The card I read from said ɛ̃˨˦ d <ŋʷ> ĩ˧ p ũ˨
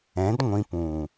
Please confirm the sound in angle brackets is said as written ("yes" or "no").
yes